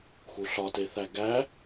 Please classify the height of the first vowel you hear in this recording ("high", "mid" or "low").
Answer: high